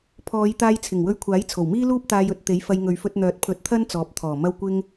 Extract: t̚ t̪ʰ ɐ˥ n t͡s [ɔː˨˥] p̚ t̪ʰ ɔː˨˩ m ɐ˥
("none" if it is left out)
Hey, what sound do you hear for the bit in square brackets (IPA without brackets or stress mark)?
ɔː˨˥